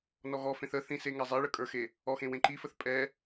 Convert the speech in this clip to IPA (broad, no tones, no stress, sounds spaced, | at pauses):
n ɔ ɣ ɔ f ẽ θ ə θ ĩ s e ŋ ɛ zˤ ɛ ɭ ə kʼ ə˞ x e | ɔ x ẽ w ẽ ǃ i f ə θ pʼ ɛ